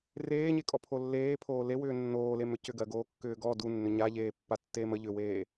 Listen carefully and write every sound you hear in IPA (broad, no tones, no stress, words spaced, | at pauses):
reːɲekʼɔpʰo lːeːpʰoː lewʏː nːoːlemʏ cʏɡɜɡoːkːʏː ɡɔ dunːʏ ɲaʎeːpːatːeːm ə ʎʏweː